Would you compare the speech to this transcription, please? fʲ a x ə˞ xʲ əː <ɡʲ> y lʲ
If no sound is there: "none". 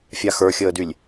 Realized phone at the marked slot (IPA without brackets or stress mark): d